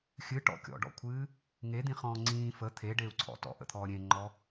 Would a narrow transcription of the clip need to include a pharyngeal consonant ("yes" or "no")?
no